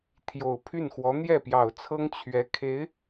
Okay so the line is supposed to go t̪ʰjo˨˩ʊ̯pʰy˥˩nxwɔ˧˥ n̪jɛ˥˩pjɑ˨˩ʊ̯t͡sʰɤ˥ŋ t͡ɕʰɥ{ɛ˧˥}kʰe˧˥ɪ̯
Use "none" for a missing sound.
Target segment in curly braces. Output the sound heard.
ɛ˧˥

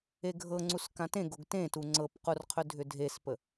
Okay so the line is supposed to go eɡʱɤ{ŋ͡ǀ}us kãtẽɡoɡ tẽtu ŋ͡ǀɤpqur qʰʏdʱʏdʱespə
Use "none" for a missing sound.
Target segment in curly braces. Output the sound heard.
ŋ͡ǀ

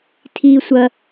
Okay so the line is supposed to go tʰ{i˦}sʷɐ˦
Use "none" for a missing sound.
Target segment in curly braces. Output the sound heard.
iː˦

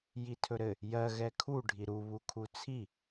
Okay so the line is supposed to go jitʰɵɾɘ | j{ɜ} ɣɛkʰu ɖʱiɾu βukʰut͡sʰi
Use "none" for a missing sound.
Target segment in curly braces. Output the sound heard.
ɜ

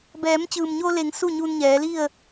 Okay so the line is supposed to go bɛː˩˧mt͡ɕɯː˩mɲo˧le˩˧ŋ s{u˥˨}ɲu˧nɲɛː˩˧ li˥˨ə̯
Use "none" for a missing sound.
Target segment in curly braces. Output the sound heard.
u˥˨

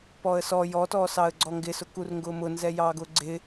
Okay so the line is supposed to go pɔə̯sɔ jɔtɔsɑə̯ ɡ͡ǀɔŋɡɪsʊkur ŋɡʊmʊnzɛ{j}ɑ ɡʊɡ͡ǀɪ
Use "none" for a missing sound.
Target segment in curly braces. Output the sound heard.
j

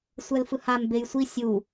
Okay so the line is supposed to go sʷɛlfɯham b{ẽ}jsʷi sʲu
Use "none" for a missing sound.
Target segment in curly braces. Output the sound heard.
e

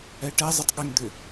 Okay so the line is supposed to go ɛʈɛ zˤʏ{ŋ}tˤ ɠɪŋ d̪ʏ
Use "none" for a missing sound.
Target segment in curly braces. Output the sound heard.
none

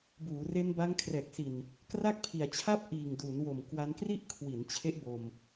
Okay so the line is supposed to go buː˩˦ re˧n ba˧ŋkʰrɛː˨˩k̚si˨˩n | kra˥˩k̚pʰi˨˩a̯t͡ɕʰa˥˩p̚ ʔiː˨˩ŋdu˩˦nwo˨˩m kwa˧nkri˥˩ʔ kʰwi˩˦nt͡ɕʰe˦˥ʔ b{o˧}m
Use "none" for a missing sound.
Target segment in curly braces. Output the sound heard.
o˧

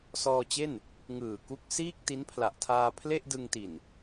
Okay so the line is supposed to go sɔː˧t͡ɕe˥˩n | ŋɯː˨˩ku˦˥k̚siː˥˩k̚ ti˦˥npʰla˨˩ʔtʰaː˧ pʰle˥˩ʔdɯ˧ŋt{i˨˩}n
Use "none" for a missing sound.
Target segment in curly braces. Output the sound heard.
i˨˩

